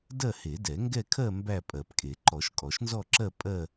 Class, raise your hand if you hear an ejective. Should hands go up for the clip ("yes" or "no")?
yes